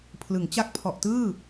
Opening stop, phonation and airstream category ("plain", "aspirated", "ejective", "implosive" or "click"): aspirated